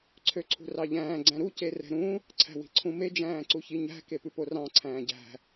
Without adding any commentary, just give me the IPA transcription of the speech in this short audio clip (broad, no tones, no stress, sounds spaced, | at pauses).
ǀʰ ø ǀʰ ṳ r ɑ ʎ æ̃ː ɡ͡ǀ æ̃ ɾ u c e r ɛ̤ ɾ ũ | ǀʰ æ̤ w i̤ ǀʰ ũ m e d͡ʒ æ̃ː ǀ u ç i ɲ æ̤ k e p ʉ p o r ɑ̃ ǀʰ æ̃ː ɟ æ̤